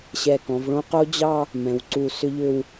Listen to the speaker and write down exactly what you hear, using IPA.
ɕ ɛ˧˩ k ɔ̃˩˧ v ɭ õ˥ q o˥ d͡ʑ ɑ˥˧ | m ɛ̃˩˧ w ǀ u˧˩ s ʏ˥ ʎ ʏ˥˧ w

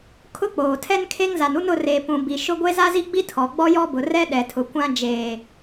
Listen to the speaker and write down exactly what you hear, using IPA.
kʰ ʊ˦ k͡p oː˨ tʰ ɛ˦ n kʰ e˦ ŋ z a˨ n u˦ n ʊ˦˨ r eː˨ p ũ˨ b i˨ ʃ ʊ˦ ɡʷ e˦ z a˦ z i˦ ɡ͡b i˦ tʰ ɔ˨ ɡ͡b ɔ˦ j ɔ˦ b ʊ˨ r ɛ˦ ɗ ɛ˨ tʰ ʊ˨ kʷ ã˦ d͡ʒ eː˨

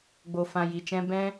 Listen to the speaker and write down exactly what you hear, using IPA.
ɡ͡b o˨ f ã˨ j i˨ t͡ʃ ɛ̃˧ b ɛ̃˦

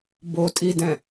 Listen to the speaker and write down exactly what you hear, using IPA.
b o tʼ i d ɛ̃

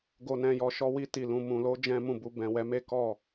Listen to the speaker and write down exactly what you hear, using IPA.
ɡ o˨ n ɛ̃˨ j ɔ˨ ʃ ɔ˧ w i˧ t i˨ l ũ˨ m ũ˨ l o˨˦ d͡ʒ ɛ̃˦ m ũ˦˨ b u˧ b ɛ̃˨ w ɛ˨˦ m e˦ k ɔ˦˨

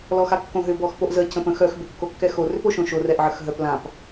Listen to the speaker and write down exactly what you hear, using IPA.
l ɔ x a kː õ ɦ ʏ b ɔ x p o ʔ z ə c ə̃ p ə̃ x œ x b ʏ kː o kː ɛ x o r ʏ p o ʃ õ ʃ o r ɛ ʔ ʕ ə x ɦ œ p l ã p

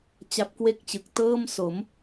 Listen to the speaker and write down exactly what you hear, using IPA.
t͡ɕ a˦˥ p̚ k w e˥˩ k̚ t͡ɕ ɯ˨˩ k̚ t ɤː˥˩ m s o˩˦ m

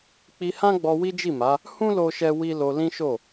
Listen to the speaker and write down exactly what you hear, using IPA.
k͡p i˧ h ã˦ ɡ͡b ɔ˧ w i˦ d͡ʒ i˦˨ m a˨˦ | h ũ˦ l o˦ ʃ ɛ˦ w i˦ l o˧ l ĩ˦ ʃ o˦˨

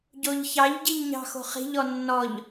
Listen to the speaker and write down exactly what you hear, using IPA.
ɟ o ʎ ç ɑ ʎ ɟ i ʎ ɲ ɑ̤ x o̤ χ i̤ ʎ ɔ nː ɔ ʎ

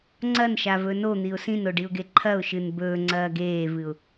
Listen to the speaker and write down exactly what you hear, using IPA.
ŋ͡ǀ ɐ n ʃ a v ɵ n o n̪ i ʊ̯ s ĩ n o ɖ i ʊ̯ ɡ e ǃʰ ɐ ʊ̯ ʃ ɨ n b ɵː ŋ͡ǀ ɐː ɡ eː v ɨ ʊ̯

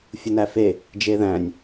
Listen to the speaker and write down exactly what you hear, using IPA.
fʲ u n æ f e | d͡ʒ e ð æ̃ nʲ

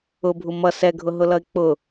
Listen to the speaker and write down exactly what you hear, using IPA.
ʊ bʱ u m ʌ s ɛ ɡʱ ʊ ɦ ʊ l ʌ ɪ̯ k͡p ʊ

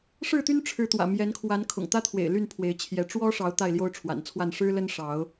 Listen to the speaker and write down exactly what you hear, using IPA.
ʂ ɻ̩˥˨ t̪ y˦ n ʈ͡ʂʰ ɻ̩˨˦ t̪ w ä̰˨˩ m j ɛ˨˦ n kʰ w a˨˦ n kʰ ʊ̰˨˩ ŋ t̪ ä˦ t̪ʰ w ḛ˨˩ ɪ̯ l y˥˨ n pʰ w e˨˦ ɪ̯ t͡ɕʰ j ɛ˨˦ ʈ͡ʂ w ɔ˦ ʂ ɑ˨˦ ʊ̯ t̪ a˥˨ ɪ̯ l j o˦ ʊ̯ ʈ͡ʂʰ w a̰˨˩ n t͡sʰ w a˥˨ n ʂ ɻ̩˦ l ə˦ n ʂ ɑ˨˦ ʊ̯

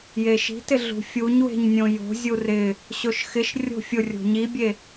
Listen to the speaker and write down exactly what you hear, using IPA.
j e ʃ i̤ t ɪ ɮ ṳ fʲ u ɲ w e̤ ɲ nʲ õ j o̤ zʲ u r ɪ | ɕ o ʃ x ɪ ʃ rʲ o̤ fʲ ʊ rʲ o̤ ɲ i bʲ e

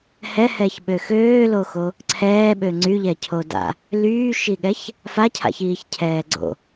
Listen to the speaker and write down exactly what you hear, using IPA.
h ɛ h ɛ ç ɓ ø x øː l o x o | ǀʰ ɛː ɓ ø ŋ͡ǀ y ʎ ɛ cʰ o d a̰ | l yː ʃ i ɠ ɛ ç | f a cʰ a̰ ç iː ç cʰ ɛː ɡ͡ǀ o̰

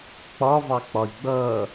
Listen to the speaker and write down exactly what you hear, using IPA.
k͡p ɒ v ɑ k͡p ɒ i̯ ɡ͡b ʌ

